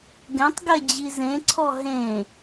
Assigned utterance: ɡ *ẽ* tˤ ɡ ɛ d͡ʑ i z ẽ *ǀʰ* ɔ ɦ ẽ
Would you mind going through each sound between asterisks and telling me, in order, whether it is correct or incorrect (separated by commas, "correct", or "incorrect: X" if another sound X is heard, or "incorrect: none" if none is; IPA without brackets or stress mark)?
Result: incorrect: ɛ̃, correct